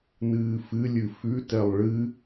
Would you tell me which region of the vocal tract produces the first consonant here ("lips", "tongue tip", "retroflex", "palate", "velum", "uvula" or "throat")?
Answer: tongue tip